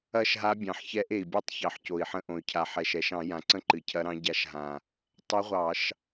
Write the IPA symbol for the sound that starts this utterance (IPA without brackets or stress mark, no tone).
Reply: ɐ